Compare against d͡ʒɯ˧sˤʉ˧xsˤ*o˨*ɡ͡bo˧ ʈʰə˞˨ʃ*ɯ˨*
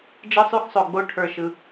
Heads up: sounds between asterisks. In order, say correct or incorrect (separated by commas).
correct, correct